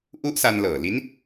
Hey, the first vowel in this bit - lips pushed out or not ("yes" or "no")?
yes